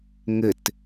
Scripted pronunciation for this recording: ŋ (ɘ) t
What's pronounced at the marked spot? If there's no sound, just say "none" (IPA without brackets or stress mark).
ɘ